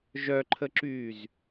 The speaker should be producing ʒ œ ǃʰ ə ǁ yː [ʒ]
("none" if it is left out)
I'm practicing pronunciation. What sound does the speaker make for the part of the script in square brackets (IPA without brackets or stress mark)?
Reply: z